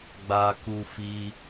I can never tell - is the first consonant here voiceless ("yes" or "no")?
no